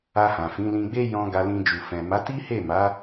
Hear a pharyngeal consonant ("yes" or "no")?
no